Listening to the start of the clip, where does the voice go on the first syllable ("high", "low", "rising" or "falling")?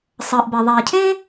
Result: low